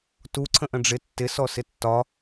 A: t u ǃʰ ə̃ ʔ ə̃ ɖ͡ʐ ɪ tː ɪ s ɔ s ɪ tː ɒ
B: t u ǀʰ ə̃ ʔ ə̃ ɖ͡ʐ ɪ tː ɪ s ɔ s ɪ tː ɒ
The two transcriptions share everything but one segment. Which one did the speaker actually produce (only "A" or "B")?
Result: B